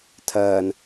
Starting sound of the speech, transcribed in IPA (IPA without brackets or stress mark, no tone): tʰ